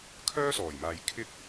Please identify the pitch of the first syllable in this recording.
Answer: high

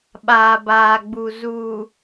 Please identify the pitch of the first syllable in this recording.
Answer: low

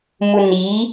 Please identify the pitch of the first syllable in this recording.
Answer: low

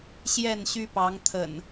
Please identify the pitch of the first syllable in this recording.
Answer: falling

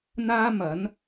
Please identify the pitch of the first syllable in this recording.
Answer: high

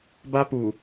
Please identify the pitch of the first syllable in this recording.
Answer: high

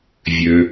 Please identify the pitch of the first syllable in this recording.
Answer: low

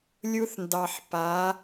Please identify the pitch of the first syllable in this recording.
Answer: high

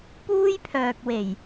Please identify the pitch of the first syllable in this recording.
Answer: high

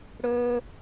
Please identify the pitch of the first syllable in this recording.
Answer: high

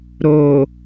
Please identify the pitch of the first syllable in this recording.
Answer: low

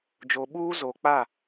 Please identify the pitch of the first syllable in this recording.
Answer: low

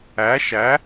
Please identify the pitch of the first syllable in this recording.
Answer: rising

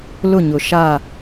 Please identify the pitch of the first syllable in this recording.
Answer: falling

